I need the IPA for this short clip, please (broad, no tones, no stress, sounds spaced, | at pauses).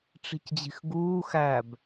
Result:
ʈ͡ʂ i̤ c d͡ʑ i̤ x ɡ uː x æ b